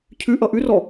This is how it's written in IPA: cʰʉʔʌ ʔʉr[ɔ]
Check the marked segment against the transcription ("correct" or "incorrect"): correct